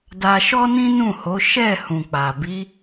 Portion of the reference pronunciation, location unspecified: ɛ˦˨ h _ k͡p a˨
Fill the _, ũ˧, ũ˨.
ũ˨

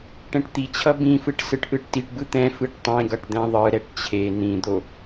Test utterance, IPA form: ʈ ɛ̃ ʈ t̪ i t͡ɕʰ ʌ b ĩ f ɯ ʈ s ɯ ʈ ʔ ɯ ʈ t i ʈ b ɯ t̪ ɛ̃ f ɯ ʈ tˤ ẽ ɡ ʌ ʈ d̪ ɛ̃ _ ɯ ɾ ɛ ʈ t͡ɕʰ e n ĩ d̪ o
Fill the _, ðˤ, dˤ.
ðˤ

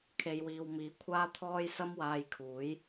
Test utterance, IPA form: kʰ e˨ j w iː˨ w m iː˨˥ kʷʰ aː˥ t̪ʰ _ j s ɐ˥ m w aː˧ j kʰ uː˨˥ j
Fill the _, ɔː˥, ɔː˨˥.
ɔː˥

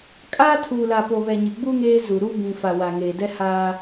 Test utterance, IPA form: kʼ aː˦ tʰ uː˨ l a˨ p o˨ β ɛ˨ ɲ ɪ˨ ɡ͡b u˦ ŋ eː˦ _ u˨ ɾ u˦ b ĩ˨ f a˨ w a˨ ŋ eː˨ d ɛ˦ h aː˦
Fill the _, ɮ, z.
z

